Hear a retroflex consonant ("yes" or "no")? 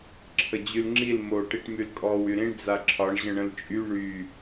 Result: yes